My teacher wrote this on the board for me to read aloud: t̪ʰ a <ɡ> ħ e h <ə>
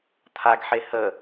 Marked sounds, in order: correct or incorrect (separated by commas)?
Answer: correct, correct